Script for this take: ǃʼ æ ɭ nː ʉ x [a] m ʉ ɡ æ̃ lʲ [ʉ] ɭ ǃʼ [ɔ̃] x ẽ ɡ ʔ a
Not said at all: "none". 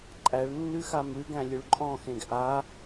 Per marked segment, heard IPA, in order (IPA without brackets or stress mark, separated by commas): a, ʉ, ɔ̃